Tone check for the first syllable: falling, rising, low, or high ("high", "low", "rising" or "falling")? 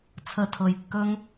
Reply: low